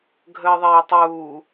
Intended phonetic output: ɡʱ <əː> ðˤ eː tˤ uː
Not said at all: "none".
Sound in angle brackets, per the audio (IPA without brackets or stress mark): əː